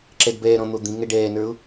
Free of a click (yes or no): no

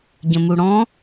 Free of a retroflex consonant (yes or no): no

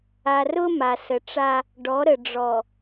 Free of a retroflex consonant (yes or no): no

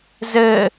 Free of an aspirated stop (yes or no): yes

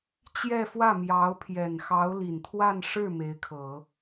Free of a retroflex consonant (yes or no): no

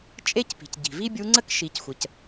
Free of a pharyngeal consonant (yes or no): yes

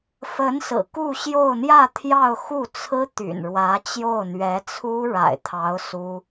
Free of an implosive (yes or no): yes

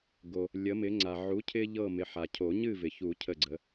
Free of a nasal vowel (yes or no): yes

